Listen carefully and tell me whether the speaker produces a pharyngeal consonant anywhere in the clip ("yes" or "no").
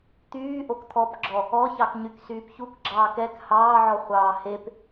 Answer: yes